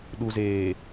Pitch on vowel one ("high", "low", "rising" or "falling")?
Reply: low